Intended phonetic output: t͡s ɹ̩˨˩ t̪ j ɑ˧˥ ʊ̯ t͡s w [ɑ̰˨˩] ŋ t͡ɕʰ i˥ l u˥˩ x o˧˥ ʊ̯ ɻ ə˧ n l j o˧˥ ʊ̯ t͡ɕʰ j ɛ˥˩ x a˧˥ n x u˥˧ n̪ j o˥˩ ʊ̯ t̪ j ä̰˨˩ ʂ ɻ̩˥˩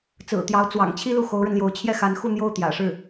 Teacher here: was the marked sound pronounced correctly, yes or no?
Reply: yes